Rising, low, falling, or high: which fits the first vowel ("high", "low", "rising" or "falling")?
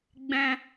high